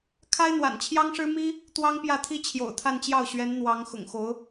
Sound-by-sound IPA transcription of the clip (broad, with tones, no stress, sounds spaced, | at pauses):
kʰ a˥ ɪ̯ n̪ w a̰˨˩ n t͡ɕʰ j ɑ˥ ŋ ʂ ɻ̩˥ m i˥ | t̪ w ɑ˥ ŋ p j ä˥˩ t̪ʰ i˥ t͡ɕʰ j o̰˨˩ ʊ̯ t̪ʰ a˥˧ n t͡ɕ j ɑ˥˩ ʊ̯ ɕ ɥ ɛ˧˥ n n̪ w ɑ˧˥ ŋ x ʊ̰˨˩ ŋ x o˧˥ ʊ̯